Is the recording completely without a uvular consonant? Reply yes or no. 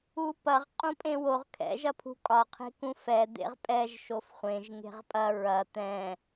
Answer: no